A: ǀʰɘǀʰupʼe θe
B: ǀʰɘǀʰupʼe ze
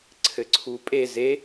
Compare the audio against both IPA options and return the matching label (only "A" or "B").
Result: B